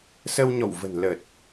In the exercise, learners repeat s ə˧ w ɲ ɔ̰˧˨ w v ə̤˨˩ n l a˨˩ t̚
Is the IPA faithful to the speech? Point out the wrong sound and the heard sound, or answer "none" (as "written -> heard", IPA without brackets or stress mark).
a˨˩ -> ə˨˩